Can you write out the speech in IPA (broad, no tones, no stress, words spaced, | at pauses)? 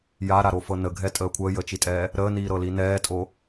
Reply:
jaɾaɾofɤ nəɡʱɛtʼəː kʷʰəːjəːt͡ʃitʼɛː | ɾəːniːɾɤli nɛːtʼo